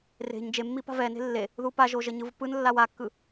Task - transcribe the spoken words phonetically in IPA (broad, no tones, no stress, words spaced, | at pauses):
re̤ɲ d͡ʒemːi pa̤vɛne̤ lːe | ðupaʒo ʒʌɲɯvpɯnlːaw akːɯ